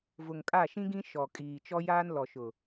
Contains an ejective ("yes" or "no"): yes